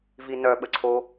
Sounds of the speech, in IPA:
v i n œ ɓ ə ǀʰ o

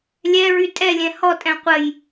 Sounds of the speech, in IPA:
lʲ ɛ ɹ y tʼ ɛ lʲ ɛ̃ h ɔ tʼ ɛ̃ qʷ ə j

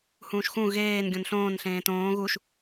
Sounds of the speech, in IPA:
h ũː ʃ x ũ ɣ eː n ɡʲ õ n ɬ õː n ɬ ẽː t õː ɣ u ʃ

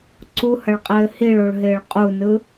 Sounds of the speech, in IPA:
ǀ u h ɐ ɭ qʼ ɘː h i ɭ o ɭ ɦ ɪː ɭ qʼ u n ɯ

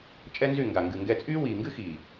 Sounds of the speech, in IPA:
t͡ʃʼ ɛ˦ n z y˦˨ ŋ ɡ a˨ ŋ ɡ ɨ˨ ŋ ɡ ɛ˧ t͡sʼ yː˦ w iː˨ ŋ ɡ ɨ˦ x iː˨

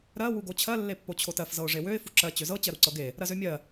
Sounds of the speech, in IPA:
ɾ ɜ w u ɡ o t͡ɕʰ ɜ lː e pː o t͡ɕʰ o t ɜ f z ɤ ʊ̯ ʐ e w ø ɪ̯ f u ǁ ɜ t͡ɕ ø z ɤ t͡ɕ ɜ ɾ u ǀ ɤ ɡ e | ɾ ɜ z ø mʲ ɜ

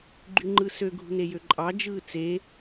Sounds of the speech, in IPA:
ɡ͡ǃ y ŋ͡ǃ ɯ s ø ɡʱ ṳ n e j ø ǃʼ ɑ d͡ʒ ɯː t͡s e

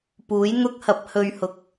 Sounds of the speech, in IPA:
p uː˨˥ j n̪ ʊ˥ k̚ h ɐ˨˥ p̚ h ɵ˨ ɥ h ʊ˨˥ k̚

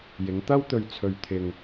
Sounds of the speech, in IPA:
j ɪ˨˧ ŋ t̪ ɐ˥ w t̪ ɵ˧ ɥ t͡sʰ ɵ˧ ɥ t̪ʰ ɪ˧ ŋ

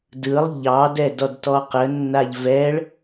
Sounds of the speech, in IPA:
d ɯ lˠ ʎ ɑ d ɛ d ɔ d t ɔ q ə nː a ʎ v ɛ ɭ

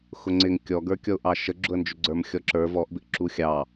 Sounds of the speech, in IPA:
x ʊ ŋ͡ǀ ɪ ŋ kʲ ɔ ɡ ə˞ kʲ ɔ ʊ̯ ʔ ɑ ʃ ə ɡ͡ǁ ʊ ə̯ n d͡ʒ ʊ ɡ͡ǀ ə˞ m xʲ ɔ ǁ ə˞ v ɔ ʔ b ɪ ʔ ǁ u xʲ ɑ

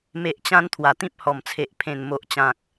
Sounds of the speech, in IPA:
m e˨ ʔ t͡ɕ ã˧ n t̪ʰ w a˨˩ t̪ ĩ˦ p̚ h ɔ˨˩ m t͡sʰ e˨ ʔ pʰ ẽ˨˩ n m o˨ ʔ t͡ɕ ã˨ k̚

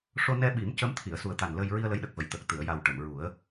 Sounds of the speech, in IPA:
ʂ o˧ n ɛ˧ ɓ i˨˩˦ m c ə˧˥ m t̪ʰ i˨˩˨ ə̯ s u˨˩ ə̯ t̪ a˨˩ n l ə˧ j ɹ i˧ ə̯ l ə˧˥ j ɗ ə˨˩ k̚ v ə˨˩˨ j t̪ ə˨˩ k̚ t̪ ɨ˨˩˨ ə̯ j a˨˩ w ʈ ə˨˩˨ m ɹ u˨˩˦ ə̯

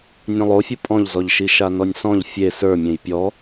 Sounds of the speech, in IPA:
nʲ õ lˠ o fʲ u pʼ ɔ̃ ʎ z ɔ ʎ ʃ i ʃ a n ɔ nʲ s ɔ̃ ʎ fʲ e s ə˞ mʲ ẽ j pʲ ɔ

